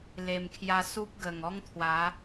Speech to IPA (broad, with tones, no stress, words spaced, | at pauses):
le˨˩mkʰja˧ su˦p̚ɡə˨˩ŋɔ˦ŋt̪ʰwa˨˦